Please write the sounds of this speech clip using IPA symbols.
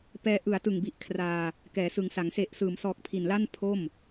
p ɛː˧ ʔ ɯ˩˦ a̯ t ɯ˨˩ ŋ b i˨˩ ʔ kʰ r aː˧ | k ɛː˩˦ s ɯ˩˦ ŋ s a˩˦ ŋ s e˨˩ ʔ s ɯː˩˦ m s ɔː˨˩ k̚ pʰ i˨˩ n l a˥˩ n pʰ o˥˩ m

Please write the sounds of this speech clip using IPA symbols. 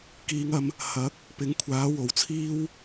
k iː˨˧ ŋ ɐ˧ m | h ɐ˨˥ k̚ | p ɪ˨˥ ŋ kʷʰ aː˨˥ w o˨ w t͡sʰ iː˥ w

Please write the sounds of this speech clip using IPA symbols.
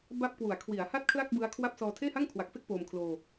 b a˦˥ p̚ k w u˨˩ a̯ kʰ w i˩˦ a̯ h a˥˩ t̚ kʰ l a˥˩ k̚ b ɯ˦˥ a̯ kʰ w a˥˩ p̚ s ɔː˧ tʰ eː˥˩ h a˥˩ ŋ kʰ w a˨˩ k̚ f e˥˩ k̚ p oː˧ m kʰ l oː˧

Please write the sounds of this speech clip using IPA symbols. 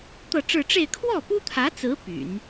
t̪ ɤ˥˧ ʈ͡ʂ ɻ̩˥˧ ʈ͡ʂ e˥˧ ɪ̯ kʰ w ɔ˥˩ p u˥ t̪ʰ ä˧˥ t͡s ɹ̩˧˥ p y̰˨˩˦ n

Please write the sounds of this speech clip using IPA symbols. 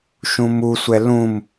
ʃ ũ m u sʷ ɛ l ũ m

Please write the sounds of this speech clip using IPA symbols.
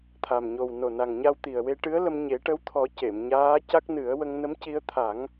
t̪ʰ a˨˩ m ɲ o˨˩ w n o˨˩ n a˨˩ ŋ ɲ a˧ w t̪ i˨˩ ə̯ w e˧ ʈ ɨ˧˥ ə̯ l ə˧ m ɲ e˨˩˦ ʈ ə˧˥ w t̪ʰ ɔ˨˩˦ c e˨˩˨ m ɲ aː˧˥ c a˦˥ k̚ n ɨ˨˩˦ ə̯ w ə˧ ŋ n ə˧˥ m c i˧ ə̯ t̪ʰ a˨˩˦ ŋ

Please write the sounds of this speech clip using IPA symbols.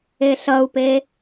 e ɬ ʌ u̯ p e

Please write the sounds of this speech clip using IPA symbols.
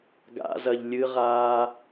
ɡ a̰ z ɐ ʎ lʲ ɨ ʁ aː

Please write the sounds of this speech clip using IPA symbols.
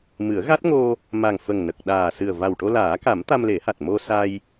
m ɨ˨˩˦ ə̯ ɣ a˦˥ t̚ ŋ o˧ | m a˨˩ ŋ f ə˨˩ ŋ n ə˨˩ k̚ ɗ aː˨˩ s ɨ˨˩ ə̯ v a˨˩ w ʈ o˧ l aː˨˩˦ k a˨˩˦ m t̪ a˧ m l e˨˩˦ h a˨˩ t̚ m o˧ s a˧ j

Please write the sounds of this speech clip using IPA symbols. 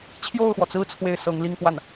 t͡ɕʰ j o˥˩ ʊ̯ x w ɔ˩ t͡s ɹ̩˥˧ t͡sʰ w e˥˩ ɪ̯ s ɤ˧˥ ŋ l i˥˧ ŋ p w a˥˩ n

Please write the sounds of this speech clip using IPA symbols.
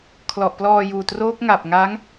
kʰ l ɔ˨˩ ʔ p l ɔː˧ j uː˨˩ t r oː˦˥ k̚ ŋ a˨˩ p̚ ŋ a˦˥ ŋ

